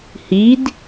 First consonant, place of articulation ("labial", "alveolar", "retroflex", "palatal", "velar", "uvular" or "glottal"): glottal